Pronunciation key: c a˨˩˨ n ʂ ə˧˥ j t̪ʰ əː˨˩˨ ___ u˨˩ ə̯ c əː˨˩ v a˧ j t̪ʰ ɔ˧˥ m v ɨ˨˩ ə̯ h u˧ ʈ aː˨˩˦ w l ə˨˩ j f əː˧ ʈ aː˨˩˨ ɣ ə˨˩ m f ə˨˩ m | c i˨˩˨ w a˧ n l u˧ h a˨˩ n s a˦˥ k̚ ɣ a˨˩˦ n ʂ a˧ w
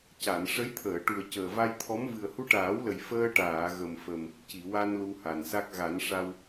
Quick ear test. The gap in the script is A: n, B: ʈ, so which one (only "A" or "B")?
B